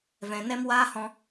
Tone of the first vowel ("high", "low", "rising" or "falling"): low